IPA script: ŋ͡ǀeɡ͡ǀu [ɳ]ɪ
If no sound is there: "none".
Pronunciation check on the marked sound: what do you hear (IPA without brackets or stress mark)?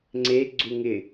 ŋ